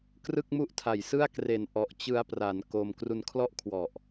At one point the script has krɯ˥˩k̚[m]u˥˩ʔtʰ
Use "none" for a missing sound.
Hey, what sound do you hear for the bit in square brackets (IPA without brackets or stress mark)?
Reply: m